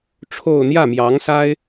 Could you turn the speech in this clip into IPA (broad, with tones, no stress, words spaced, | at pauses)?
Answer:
ʈ͡ʂʰo˥˧ʊ̯ n̪jä˥˩mjɑ˧˥ŋsa˥ɪ̯